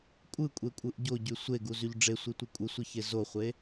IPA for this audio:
kʷʼ ɯ kʷʼ e kʷʼ ɯ ʔ ɟ o ɟ y sʷ e ɡ u z y ʎ ɖ͡ʐ e sʷ i tʷ ɯ kʷʼ ɯ sʷ i ç e z o χʷ e

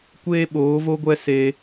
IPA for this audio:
kʷ eː˦ ɓ oː˨˦ v o˦ ɡʷ ɛ˦ s e˧

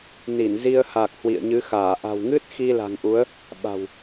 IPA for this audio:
n i˧˩ n z i˧ ə̯ h aː˨˩ k̚ h w ḭ˧˨ ə̯ ɲ ɨ˨˦ x aː˧˩ ʔ a̤˨˩ w ŋ ɨ˦˥ t̚ x i˧ l a̤˨˩ ŋ ʔ u˨˦ ə̯ | ɓ a̤˨˩ w

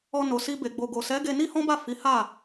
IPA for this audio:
ɔ˧ n o˨ s i˧ b e˨ ɡ͡b o˨ ɡ o˨ s ɛ˨˦ ɡ e˧ n i˦ h ɔ̃˦ b a˦˨ f i˨˦ h a˦˨

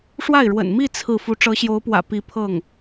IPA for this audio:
ʂ w a˥˩ ɪ̯ ɻ w ə̰˨˩ n m i˥˧ t͡sʰ ɹ̩˥˩ f u˧˥ ʈ͡ʂ ɤ˧˥ ɕ j o˧˥ ʊ̯ p w ä̰˨˩ p i˧˥ pʰ ɤ˥˩ ŋ

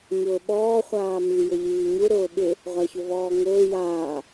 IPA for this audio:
ɲ ʊː ɓ ɔː χʷ aː m i j ʊ ʎ iː ɲ u ɾ ʊː ɓ ɪ | ʁʷ a ç ʊ v ɔː ŋ ʊː j aː

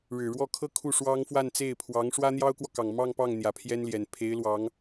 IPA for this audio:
ɻ ɻ̩˨˩ ɻ w ɔ˥˩ kʰ ɤ˥ kʰ u˥˩ ʂ w ɑ˥ ŋ f w a˥˧ n t͡s e˥˩ ɪ̯ pʰ w ɑ˧˥ ŋ ʂ w ä˥ n̪ j ɑ˥ ʊ̯ k w ɔ˨ k ɑ˨˩ ŋ m ɑ˥˧ ŋ p ɑ˥˩ ŋ n̪ j ä˨˩ pʰ j ɛ˥ n l j ɛ˨˩ n pʰ e˧˥ ɪ̯ l w ɑ˧˥ ŋ

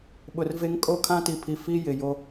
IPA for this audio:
ɓ ʊ˨ r v e˦ ŋ kʼ o˦˨ kʰ ã˦ t i˨ pʰ i˨ f i˦ j ɪ˨ j o˦

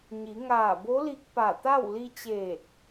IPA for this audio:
ɲ i˩˧ ŋ aː˧˩ b o˧˥ l i˧ k̚ p a˧˩ t̪ a˥˨ w l i˧ t͡ɕ eː˧˩ t̚

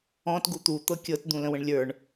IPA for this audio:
ɔ̃ t ɡ u t̪ u t̪ ɤ kʲ ɤ t d̪ ũ l ə̃ w ə̃ ɳ lʲ ə˞ ɳ

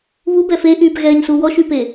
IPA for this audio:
β u b ɛ f e ʔ yː p ɣ ɛː ɲ s u w ɔ ʃ y p e

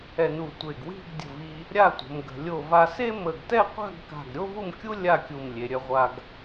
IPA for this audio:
ɛ˧ n u˧˩ tʷ e˧˩ ɡ w i̤˥˧ ɡ dʲ ə̤˧˩ v i˧ | ɾʲ a˥˧ tʷ ə̤˩˧ m ɡ ə̤˩˧ lʲ o˧˩ v a˧ s e˥ m ə˧˩ ɡ t ɛ˥˧ qʷ a̤˥˧ ɡ k a̤˧˩ ɡ ɾʲ o˥ v u˥˧ m kʲ u˥ lʲ a˥˧ kʲ u˧˩ m lʲ e˩˧ ɾʲ œ˧ ʁʷ a˧ ɡ

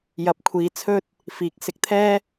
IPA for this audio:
j ɐ˨˥ p̚ kʷʰ iː˨˧ t͡sʰ ɵ˥ t̚ | f iː˨˥ k̚ s ɪ˨˥ k̚ t̪ʰ ɛː˥

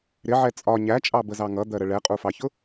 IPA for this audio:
ɾ ɪ ʕ ɛ t͡sʼ ɒ ɲ æ t͡ʃʼ ɑ b ə z ɑ ŋ ʌ d̪ ɜ ɾ ə ɭ ɛ qʼ u f ɑ ç ʊ

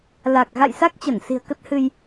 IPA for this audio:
l a˨˩ k̚ ɣ a̰˧˨ j s a˦˥ k̚ t͡ɕ ə˧˩ n s i̤˨˩ ə̯ k ə˦˥ t̚ h ɨ˧ j

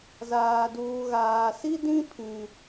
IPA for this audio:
z aː˨ d uː˨ ɣ aː˨ s i˦ d ĩ˦ pʰ ĩ˨

